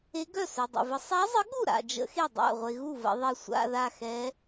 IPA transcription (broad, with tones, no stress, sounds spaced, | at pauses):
e˧˥ ɡ œ˥˩ s œ˨ dˤ ə̰˨ v ə˧˥ sˤ a˧˥ zˤ ə˧˥ ɠ u˥˩ ɾ a̰˨ d͡ʒ ə̰˧˥ x e˥˩ dˤ a̰˥˩ ʁʷ e˨ ɣ u˥˩ v ə̰˨ ðˤ e˥˩ sʷ a̰˧˥˧ ð a˥˩ x ɛ˧˥